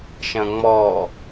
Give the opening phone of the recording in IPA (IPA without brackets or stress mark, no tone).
ʃ